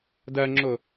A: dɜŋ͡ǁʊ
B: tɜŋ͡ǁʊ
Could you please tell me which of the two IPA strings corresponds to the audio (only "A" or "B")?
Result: A